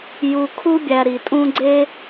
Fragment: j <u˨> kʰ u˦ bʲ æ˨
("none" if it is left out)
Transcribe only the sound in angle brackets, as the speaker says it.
u˨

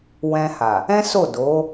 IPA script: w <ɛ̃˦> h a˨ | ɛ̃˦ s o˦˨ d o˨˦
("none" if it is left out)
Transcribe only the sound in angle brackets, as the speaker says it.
ɛ̃˧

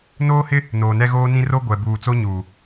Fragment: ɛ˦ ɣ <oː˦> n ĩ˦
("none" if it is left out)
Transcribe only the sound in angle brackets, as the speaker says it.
oː˦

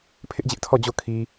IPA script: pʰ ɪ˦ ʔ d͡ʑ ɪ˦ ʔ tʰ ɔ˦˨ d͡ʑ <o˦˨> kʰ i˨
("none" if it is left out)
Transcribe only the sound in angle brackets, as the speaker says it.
o˦˨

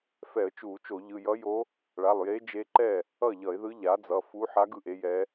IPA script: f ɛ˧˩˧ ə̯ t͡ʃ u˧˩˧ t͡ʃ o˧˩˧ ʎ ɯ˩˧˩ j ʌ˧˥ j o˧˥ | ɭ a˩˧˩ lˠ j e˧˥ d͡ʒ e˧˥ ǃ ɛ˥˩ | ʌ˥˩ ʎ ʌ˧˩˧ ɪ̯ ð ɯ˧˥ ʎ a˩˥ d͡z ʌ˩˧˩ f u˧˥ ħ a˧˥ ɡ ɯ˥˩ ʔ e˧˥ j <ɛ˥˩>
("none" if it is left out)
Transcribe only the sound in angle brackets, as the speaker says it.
ɛ˧˥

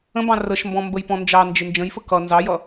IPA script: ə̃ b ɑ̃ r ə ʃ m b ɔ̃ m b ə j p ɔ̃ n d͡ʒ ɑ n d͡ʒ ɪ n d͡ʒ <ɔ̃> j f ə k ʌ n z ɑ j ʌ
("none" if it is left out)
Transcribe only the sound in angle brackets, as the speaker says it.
ə̃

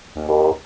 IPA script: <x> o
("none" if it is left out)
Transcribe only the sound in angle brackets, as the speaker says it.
ŋ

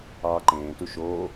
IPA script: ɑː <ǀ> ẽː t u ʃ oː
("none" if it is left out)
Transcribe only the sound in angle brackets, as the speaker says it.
ǃ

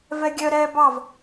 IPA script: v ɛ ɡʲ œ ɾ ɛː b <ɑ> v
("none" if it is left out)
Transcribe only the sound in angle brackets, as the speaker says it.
ɑ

